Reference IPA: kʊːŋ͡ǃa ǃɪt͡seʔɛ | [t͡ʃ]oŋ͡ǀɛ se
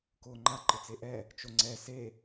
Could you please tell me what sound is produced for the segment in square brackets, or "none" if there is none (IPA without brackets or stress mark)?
t͡ʃ